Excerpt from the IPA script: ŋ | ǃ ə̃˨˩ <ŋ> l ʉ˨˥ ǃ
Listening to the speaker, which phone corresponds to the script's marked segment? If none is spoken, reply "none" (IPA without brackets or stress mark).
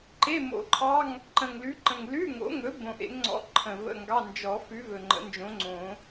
ŋ